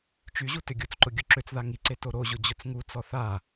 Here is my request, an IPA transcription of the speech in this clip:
t͡ʃ y ʑ u t ʏ ɡʲ u t͡s ǃ ʊ ɡʲ ʊ ǁ ʏ t͡s ð a ŋ i ǀ e t o ɾ o ʑ ʊ d͡ʑ ʊ t͡s ŋ u t͡s ɔ θ a

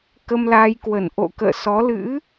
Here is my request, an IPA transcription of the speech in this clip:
k ə˧ m l aː˧ j k w ə˧˩ n ʔ o̰˧˨ k ə̰ː˧˨ s ɔ˨˦ l ɨ̰˧˥

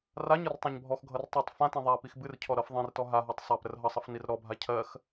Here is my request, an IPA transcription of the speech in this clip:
r a ɲ ʌ r tˤ ã ɲ bʱ ɔ x ɡʱ ʌ r tˤ y tˤ f ã t ĩ ðˤ a p i x b ɨ r cʰ ɔ ɾ ʌ f ðˤ ĩ r t ɔ ɦ a ɦ ɔ tˤ sˤ a p ɾ ə r ɦ ʌ sˤ ʌ f n i r ɾ ɔ bʱ a cʰ ɜ x

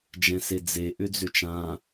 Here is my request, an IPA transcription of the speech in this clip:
d͡ʒ ɛ̃ s e d͡z e ʔ ʏ d͡z ʏ t͡ʃ ã

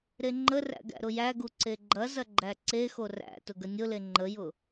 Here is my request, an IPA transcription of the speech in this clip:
ɾ e ŋ͡ǃ ə r æ̰ ɡ æ̰ ɾ ʊ j æ ɡ u ǀ e ɡ͡ǃ ɐ z ɐ ɡ͡ǃ æ ǀ e x o r æ̰ t ʊ ɡ ə nʲ ʊ l e ŋ͡ǃ ə j ʊ

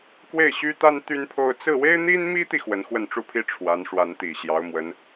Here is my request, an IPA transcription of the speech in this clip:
k w e˥˩ ɪ̯ ɕ y˥ t̪ a˥ n t̪ y˥ n pʰ o˥˧ ʊ̯ t͡s ɹ̩˥˩ w e˥ ɪ̯ n̪ i˥ n m i˥ t̪ i˨ x w ə˧˥ n x w ə˥˧ n ʈ͡ʂ u˥˩ pʰ i˥ ʈ͡ʂʰ w a˧˥ n ʂ w a˧˥ n t̪ i˨˩ ɕ j ɑ˧˥ ʊ̯ m w ə˧˥ n

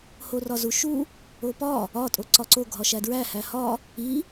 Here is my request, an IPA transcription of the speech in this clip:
h o r ɒ z u ʃ u | o p ɒ | ɒ tʼ o ǀ ɒ ǀ o ɡʱ ɒ ʃ æ d ɹ æ h æ h ɒ | i

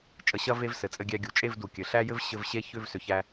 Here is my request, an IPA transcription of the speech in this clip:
t͡ʃʼ ə˧ ɕ ɐ˦ v e˦ v s ɘ˨ t͡sʼ ɘ˧ ɡʲ æ˧ ɡʲ u˨ t͡ʃʼ e˦˨ v d u˨ kʲ ɘ˨ ɬ æ˦ j ɘ˦ v ɕ ɘ˧ v ɕ e˦˨ ç ʏ˦˨ v s ʏ˨ ç æ˧

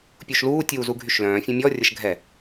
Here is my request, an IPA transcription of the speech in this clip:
pʲ u ʃ l uː tʲ uː z u ɡʱ y ʃ l œ̃ː fʲ ɛ̃ mʲ ɔ rʲ ə ʃ ɡʱ ɛ

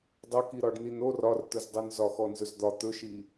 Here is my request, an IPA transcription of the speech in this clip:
dˤ ɵ k i ɾ ɒ ɖ n i n o r ɒ r t̪ ɵ z dˤ o n z ɒ x ɔ n z ɵ z d̪ ɒ t̪ ɵ ʃ i

